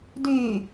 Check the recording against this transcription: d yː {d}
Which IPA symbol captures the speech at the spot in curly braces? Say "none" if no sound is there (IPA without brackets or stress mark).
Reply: none